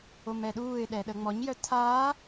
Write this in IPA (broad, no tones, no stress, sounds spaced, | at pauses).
o m ɛ ɗ uː ɪ̯ ɗ ɛ ɗ ə ŋ͡m ɔ ɲ j œ tʰ aː